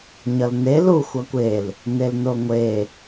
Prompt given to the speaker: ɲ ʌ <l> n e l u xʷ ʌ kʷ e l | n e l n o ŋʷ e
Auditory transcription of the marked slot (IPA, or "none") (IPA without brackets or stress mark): l